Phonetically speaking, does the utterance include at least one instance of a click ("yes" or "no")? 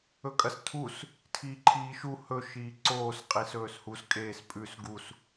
yes